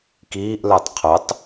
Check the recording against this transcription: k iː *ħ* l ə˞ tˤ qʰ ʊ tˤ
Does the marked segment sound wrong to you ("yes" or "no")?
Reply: yes